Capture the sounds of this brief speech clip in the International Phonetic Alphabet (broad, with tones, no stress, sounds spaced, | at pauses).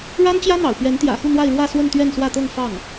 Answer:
ɻ a˥ n t͡ɕ j ä˥ n̪ ɑ̰˨˩ ʊ̯ p ɥ ɛ˧˥ n t̪ j ä̰˨˩ x u˥˧ n̪ w a˥˧ ɪ̯ ɻ w ä˥˧ s w ə˥˧ n t̪ ɥ ɛ˥˧ n s w ä˥˧ t̪ ɤ˥˧ ŋ f ɑ˥˩ ŋ